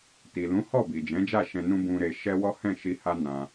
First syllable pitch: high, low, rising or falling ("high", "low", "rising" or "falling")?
low